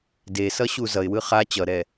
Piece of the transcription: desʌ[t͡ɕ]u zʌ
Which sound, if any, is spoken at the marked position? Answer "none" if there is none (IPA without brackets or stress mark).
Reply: ɕ